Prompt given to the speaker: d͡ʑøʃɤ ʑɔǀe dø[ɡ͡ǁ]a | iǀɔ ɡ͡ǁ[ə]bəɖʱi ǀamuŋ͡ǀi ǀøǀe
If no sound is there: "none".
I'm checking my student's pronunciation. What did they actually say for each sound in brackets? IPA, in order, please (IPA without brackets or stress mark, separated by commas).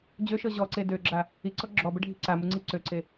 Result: ɡ͡ǁ, ɔ